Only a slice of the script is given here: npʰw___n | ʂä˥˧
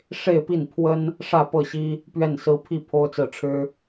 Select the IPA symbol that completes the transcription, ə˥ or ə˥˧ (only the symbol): ə˥